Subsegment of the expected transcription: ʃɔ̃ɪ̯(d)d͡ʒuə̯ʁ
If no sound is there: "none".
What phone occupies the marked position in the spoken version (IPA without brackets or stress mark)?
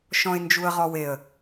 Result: n